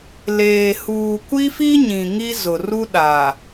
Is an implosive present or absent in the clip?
present